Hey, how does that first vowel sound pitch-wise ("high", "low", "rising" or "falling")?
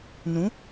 rising